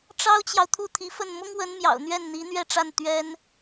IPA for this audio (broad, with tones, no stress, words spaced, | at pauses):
ʈ͡ʂɑ˥ʊ̯t͡ɕjɑ˨ʊ̯ t̪ʰu˥˩t̪ʰi˧˥fə˥˩n mʊ˥ŋwə˧˥nmjɑ̰˨˩ʊ̯ n̪ɥɛ˥˩nn̪i˧˥n̪ɥɛ˥˧ʈ͡ʂa˥˩n t̪ɥɛ˥n